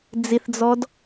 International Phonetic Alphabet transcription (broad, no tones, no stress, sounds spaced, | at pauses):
d͡z i θ d͡z ɔ d